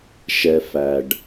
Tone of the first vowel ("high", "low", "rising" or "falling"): low